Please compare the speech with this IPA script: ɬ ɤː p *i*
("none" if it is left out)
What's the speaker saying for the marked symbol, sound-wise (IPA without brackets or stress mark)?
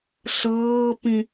ĩ